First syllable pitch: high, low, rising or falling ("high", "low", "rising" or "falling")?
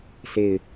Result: falling